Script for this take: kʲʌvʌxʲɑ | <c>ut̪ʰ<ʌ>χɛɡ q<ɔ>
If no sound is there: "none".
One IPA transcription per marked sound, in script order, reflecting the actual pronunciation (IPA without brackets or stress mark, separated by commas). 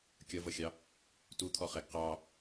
t, ɔ, ɑ